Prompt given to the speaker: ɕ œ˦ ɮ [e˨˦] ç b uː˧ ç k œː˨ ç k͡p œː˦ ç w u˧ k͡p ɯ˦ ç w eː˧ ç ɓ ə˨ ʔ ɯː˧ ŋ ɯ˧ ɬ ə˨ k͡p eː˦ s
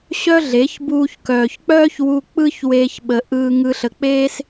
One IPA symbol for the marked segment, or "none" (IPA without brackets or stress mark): e˨˦